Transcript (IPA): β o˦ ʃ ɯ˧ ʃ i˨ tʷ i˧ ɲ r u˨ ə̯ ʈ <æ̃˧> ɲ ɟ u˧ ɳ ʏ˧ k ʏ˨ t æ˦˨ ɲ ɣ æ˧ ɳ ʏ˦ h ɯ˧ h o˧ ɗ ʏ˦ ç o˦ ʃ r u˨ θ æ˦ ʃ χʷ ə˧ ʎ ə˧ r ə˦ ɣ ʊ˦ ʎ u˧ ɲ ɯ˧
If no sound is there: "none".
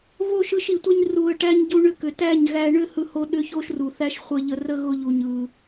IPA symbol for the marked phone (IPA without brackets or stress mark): æ˧